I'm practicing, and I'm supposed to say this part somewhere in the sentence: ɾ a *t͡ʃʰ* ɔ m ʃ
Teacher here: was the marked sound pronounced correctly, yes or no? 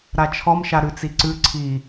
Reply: yes